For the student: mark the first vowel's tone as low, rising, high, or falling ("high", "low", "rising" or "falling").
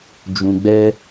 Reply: low